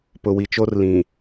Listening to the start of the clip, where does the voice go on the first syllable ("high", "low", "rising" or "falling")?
low